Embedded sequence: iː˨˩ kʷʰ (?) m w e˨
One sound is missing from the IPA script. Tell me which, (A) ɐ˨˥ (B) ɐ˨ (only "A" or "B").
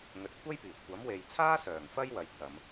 A